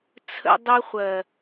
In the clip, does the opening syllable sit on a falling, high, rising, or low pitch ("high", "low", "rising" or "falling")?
high